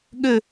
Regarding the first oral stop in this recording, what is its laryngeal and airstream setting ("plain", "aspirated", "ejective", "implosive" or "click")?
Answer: implosive